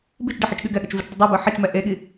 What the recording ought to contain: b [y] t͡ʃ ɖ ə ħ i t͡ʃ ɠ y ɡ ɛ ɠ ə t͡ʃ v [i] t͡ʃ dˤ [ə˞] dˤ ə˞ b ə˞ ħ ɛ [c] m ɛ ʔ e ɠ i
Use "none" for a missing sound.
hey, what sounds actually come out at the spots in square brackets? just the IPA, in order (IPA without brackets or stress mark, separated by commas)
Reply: i, y, ə, t͡ʃ